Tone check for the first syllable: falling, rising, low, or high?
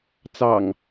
low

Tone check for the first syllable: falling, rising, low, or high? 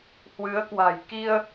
rising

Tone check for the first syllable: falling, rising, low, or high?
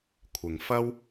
low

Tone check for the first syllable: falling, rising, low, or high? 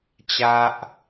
high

